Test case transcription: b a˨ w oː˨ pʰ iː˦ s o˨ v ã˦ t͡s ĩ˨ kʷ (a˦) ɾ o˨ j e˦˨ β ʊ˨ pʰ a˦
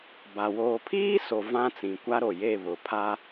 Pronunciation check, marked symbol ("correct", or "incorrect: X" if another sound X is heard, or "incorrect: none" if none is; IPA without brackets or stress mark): correct